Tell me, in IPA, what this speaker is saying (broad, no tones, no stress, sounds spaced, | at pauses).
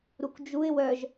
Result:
ɾ u k d͡ʒ u ɪ̯ w œ ʒ